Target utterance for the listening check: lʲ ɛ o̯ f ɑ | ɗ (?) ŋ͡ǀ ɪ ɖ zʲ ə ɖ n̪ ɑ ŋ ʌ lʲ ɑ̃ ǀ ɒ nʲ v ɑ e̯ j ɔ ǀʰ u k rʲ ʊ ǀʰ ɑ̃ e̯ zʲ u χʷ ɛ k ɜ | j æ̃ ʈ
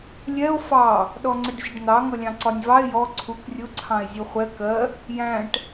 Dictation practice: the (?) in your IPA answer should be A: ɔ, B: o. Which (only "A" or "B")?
A